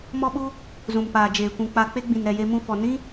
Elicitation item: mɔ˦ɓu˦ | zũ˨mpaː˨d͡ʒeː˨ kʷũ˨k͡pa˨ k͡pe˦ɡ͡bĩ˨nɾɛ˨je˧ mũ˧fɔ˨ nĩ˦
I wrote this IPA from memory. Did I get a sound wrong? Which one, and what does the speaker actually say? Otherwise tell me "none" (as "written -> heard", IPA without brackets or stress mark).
none